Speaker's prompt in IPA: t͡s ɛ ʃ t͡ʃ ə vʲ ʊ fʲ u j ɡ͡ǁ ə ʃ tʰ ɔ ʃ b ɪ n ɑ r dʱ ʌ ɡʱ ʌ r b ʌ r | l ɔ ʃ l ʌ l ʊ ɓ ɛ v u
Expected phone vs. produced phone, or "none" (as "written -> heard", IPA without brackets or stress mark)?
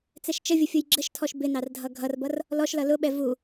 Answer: none